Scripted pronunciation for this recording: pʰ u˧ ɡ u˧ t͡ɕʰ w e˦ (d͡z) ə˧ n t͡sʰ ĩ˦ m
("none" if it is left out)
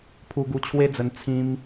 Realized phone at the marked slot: d͡z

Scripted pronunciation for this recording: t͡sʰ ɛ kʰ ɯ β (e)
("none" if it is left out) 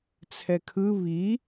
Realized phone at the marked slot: i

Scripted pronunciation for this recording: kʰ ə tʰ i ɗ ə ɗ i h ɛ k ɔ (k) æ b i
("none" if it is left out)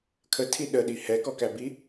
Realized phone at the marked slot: k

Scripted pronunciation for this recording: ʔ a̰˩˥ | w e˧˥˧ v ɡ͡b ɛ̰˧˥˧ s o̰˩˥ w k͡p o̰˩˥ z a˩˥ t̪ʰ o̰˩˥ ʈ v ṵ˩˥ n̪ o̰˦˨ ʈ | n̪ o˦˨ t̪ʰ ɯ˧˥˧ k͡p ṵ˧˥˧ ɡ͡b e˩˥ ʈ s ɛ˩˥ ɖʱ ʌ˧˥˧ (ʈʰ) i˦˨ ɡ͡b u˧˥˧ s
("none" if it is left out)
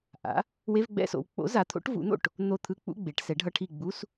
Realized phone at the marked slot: ʈʰ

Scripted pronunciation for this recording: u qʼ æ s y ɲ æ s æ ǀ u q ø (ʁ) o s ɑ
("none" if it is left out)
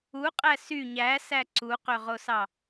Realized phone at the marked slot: ʁ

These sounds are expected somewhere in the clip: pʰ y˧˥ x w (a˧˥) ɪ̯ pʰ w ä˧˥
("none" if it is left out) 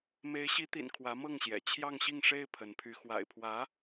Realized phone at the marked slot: a̰˨˩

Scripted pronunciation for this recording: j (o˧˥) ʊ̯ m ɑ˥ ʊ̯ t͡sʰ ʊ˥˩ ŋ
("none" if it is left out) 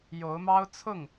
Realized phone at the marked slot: o˧˥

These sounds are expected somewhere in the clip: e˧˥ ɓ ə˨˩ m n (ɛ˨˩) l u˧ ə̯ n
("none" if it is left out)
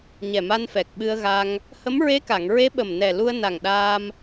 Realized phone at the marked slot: ɛ˨˩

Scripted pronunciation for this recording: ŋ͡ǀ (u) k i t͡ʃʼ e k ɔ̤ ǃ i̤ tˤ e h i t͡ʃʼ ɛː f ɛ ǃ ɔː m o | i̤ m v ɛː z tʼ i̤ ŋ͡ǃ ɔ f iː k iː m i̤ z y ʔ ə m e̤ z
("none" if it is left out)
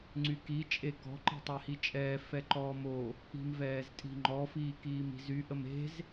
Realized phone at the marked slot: y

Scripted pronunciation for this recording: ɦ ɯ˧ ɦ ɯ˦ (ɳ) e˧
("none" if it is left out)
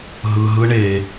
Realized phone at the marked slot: ɳ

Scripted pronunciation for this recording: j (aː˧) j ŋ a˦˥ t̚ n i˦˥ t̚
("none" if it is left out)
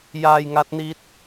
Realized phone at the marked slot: aː˧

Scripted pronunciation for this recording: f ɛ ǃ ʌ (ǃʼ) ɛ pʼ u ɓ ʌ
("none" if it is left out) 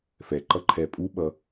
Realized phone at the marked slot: ǃʰ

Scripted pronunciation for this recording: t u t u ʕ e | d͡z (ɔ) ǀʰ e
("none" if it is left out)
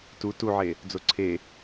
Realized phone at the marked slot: o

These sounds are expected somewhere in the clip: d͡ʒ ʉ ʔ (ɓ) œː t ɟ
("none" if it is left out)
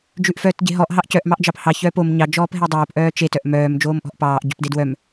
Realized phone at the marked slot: f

